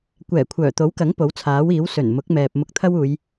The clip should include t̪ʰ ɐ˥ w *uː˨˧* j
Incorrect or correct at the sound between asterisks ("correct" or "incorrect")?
correct